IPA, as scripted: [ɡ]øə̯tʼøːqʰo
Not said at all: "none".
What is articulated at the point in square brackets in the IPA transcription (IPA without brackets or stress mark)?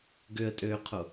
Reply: ɡ